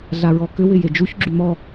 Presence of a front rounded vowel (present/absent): present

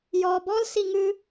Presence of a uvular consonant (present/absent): absent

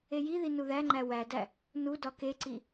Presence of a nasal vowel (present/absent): absent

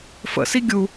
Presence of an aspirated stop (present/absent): absent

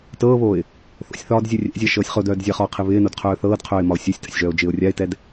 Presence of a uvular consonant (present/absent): present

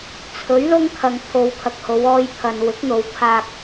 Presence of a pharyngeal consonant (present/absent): absent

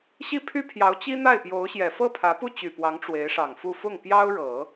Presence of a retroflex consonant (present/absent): present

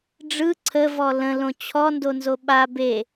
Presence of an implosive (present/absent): present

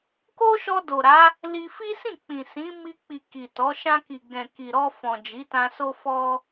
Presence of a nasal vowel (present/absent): present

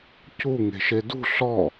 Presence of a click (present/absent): absent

